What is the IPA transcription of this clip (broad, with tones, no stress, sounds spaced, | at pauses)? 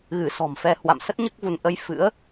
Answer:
ɣ ɨ˧˩ s ɔ̤˨˩ m f ɛ˧ h w a̰˧˨ m s ə˦˥ t̚ ɲ ɨ˦˥ k̚ v u˧ n ʔ ə˧ j f ɨ̰˧˥ ə̯